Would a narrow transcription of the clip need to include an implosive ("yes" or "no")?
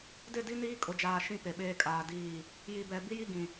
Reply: yes